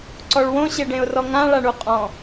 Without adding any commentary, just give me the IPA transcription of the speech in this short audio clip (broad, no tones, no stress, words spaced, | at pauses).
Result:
ǀɔɭwõ ɕeɖẽʊ̯rɔŋã ɭaɳuqʼɔ̃